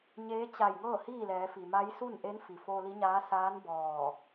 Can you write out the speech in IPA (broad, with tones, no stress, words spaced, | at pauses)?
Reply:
ɲeː˧˥ t͡ɕa˧˩jŋɤː˥˨ hiː˥˨lɛː˩˧fi˩ma˧˥j su˥˨nʔe˧˥nfi˩ foː˧li˧˥ɲaː˧˥ saː˧˥n bɔː˧˩